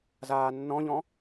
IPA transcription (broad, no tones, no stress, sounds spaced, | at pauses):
z aː nː ɔ̃ ʎ ɔ̃